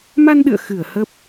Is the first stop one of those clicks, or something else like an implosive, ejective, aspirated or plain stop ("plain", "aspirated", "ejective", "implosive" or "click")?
implosive